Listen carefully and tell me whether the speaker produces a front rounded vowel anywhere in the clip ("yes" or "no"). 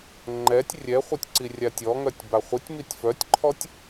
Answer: yes